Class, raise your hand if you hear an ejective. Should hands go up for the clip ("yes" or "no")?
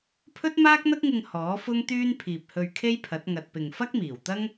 no